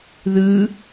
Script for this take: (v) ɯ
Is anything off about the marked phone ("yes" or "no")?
yes